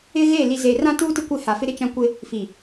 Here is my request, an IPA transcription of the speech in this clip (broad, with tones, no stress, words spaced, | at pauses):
ɪ˦ɣe˦˨ li˨ze˨ rã˦tuː˦tɪ˦kʷɪ˦˨ ha˨fɪ˦ɾɪ˦ t͡ʃã˦kʷɪ˦ | fi˨